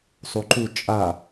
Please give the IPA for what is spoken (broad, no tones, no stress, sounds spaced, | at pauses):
sˤ u ǃ u t͡ʃʼ a